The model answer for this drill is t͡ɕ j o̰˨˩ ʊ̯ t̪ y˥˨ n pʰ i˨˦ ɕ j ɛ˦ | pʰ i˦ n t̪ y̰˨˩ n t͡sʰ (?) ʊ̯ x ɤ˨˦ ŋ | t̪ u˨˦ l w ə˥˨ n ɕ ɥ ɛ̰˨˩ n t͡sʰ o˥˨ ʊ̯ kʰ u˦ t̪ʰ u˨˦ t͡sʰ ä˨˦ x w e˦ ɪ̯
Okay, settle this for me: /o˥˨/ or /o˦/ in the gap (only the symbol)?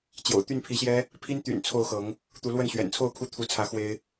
o˥˨